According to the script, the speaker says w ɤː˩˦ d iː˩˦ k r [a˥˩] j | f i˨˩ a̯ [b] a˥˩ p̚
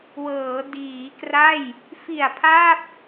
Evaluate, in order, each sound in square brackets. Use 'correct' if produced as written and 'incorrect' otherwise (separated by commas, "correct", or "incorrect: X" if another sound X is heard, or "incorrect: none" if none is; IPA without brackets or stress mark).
correct, incorrect: pʰ